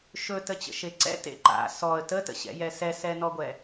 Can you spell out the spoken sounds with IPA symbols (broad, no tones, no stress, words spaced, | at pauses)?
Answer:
ʃɵtət͡ɕə̰ʃe ǀɛ̰tḛ ǃa̰ sɔə̯ tətə̰ɕɛ̰jɛ sɛsɛnɔɡʷɛ